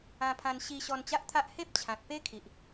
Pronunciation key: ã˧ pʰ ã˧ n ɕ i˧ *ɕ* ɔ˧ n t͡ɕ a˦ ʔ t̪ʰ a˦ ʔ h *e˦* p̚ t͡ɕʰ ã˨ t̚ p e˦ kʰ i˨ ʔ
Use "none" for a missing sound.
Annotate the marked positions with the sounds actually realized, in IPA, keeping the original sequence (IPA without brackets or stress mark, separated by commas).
ɕ, e˦